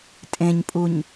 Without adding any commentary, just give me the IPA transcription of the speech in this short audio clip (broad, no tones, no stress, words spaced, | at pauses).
tʼẽɲpʼuɲ